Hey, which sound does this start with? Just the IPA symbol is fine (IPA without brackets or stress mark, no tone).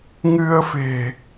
ŋ